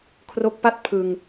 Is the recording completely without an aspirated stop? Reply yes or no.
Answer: no